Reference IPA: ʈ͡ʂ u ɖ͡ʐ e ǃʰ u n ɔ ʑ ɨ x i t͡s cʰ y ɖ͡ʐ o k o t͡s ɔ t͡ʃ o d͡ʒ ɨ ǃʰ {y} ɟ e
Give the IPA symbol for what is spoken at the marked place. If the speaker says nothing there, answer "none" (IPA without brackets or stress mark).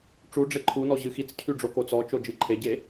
e